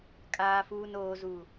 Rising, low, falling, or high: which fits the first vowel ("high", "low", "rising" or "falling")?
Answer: low